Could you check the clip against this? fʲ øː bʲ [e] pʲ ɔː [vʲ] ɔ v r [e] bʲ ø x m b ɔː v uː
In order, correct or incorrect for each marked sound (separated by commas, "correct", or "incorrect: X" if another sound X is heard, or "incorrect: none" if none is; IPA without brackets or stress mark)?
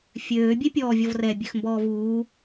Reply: correct, correct, incorrect: ɛ